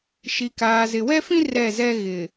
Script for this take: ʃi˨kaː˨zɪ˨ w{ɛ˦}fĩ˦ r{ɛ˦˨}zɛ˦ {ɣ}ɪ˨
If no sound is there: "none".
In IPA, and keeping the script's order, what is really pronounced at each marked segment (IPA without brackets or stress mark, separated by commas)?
ɛ˦, ɛ˦˨, ɣ